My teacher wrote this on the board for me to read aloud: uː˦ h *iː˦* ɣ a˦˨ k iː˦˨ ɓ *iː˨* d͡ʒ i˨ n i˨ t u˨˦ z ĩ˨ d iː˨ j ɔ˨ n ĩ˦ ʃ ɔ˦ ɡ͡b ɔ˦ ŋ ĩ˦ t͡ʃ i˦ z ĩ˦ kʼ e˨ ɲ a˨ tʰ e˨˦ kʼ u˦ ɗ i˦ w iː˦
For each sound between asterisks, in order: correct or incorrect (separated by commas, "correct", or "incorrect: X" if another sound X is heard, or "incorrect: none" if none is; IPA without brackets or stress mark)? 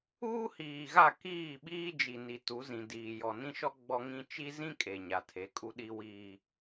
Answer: incorrect: iː˨, incorrect: iː˦